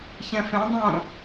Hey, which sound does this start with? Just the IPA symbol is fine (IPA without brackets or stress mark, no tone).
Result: ç